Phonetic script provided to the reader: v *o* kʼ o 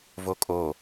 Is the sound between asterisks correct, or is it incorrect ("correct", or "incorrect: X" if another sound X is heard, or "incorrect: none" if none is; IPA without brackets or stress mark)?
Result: correct